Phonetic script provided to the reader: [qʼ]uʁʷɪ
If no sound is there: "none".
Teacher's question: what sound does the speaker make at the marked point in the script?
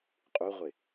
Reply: qʼ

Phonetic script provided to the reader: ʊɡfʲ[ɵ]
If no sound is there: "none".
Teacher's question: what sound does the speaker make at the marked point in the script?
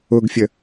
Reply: ə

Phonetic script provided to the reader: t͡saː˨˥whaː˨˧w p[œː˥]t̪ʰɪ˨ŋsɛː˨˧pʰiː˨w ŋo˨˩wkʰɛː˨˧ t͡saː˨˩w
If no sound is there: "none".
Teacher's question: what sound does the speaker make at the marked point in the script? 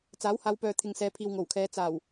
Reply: œː˨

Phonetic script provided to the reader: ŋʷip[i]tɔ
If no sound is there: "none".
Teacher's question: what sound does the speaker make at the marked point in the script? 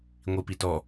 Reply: i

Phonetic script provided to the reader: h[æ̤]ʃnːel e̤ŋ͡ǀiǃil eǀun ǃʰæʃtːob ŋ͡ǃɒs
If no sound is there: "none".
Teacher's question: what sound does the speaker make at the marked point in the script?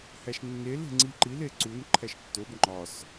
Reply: æ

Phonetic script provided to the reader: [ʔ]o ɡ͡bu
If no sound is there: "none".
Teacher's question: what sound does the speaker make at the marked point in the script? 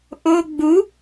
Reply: ʔ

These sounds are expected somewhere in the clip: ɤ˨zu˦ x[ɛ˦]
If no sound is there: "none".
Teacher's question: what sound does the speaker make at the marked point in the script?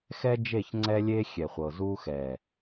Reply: ɛ˨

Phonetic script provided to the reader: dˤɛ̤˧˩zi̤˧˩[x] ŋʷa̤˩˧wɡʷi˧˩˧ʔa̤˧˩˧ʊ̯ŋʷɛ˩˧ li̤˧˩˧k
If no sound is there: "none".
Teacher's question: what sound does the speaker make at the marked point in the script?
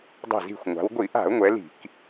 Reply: xʷ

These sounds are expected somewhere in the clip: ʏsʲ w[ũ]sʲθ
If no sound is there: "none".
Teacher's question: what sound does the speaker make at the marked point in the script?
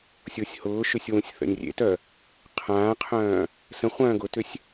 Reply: ũ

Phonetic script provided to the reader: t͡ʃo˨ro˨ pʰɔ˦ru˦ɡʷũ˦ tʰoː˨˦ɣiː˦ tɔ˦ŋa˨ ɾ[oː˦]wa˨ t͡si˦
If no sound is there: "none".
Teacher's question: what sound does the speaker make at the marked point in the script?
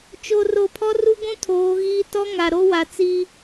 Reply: o˦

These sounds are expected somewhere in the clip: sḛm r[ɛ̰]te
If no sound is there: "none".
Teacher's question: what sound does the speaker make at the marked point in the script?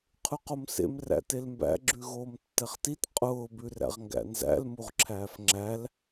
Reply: æ̰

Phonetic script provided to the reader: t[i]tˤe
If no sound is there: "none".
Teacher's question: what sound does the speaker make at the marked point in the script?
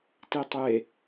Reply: i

